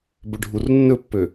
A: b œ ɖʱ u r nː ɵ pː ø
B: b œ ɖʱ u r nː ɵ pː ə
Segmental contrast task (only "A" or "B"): A